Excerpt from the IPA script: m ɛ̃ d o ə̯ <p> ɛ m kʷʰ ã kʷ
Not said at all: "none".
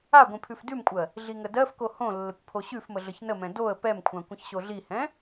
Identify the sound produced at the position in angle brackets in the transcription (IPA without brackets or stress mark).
p